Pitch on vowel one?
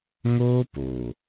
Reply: high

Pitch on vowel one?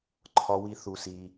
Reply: high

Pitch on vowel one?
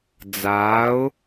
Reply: rising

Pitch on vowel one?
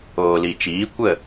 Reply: low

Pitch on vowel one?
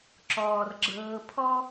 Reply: low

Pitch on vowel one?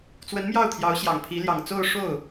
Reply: rising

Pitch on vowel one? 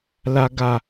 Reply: low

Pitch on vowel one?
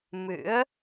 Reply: rising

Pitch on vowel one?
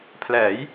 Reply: rising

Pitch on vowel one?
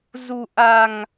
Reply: low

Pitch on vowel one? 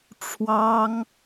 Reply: high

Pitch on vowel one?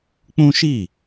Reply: high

